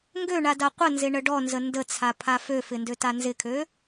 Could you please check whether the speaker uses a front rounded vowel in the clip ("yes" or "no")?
yes